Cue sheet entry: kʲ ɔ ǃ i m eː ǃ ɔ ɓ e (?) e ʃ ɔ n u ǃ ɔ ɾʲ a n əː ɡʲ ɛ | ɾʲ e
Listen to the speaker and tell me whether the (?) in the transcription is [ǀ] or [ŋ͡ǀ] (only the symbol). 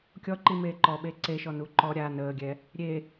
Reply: ǀ